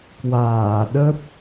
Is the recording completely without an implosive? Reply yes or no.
no